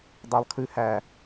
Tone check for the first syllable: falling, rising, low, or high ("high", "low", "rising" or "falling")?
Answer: high